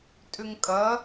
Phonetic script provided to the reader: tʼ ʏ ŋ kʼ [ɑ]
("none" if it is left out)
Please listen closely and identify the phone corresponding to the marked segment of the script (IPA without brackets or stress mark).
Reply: ɐ